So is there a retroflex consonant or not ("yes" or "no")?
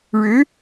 yes